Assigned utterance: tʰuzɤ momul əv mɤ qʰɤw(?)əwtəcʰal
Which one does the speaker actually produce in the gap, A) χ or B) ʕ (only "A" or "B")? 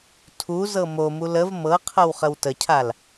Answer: A